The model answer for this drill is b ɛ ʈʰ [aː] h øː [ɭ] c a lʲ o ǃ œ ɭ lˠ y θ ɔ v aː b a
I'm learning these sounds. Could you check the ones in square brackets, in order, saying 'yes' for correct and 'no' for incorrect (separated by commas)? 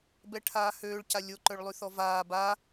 yes, yes